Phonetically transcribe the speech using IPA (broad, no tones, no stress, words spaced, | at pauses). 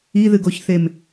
iðɨɡoçθem